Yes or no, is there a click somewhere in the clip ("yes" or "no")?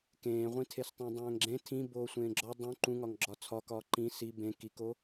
yes